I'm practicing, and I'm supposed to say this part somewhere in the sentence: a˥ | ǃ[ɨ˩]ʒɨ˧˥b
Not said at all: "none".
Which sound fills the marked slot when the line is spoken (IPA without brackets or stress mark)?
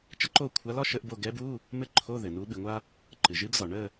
ɨ˩